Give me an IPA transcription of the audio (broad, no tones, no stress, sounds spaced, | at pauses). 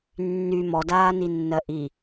nː y m ɔ d aː n i nː ɜ ʔ i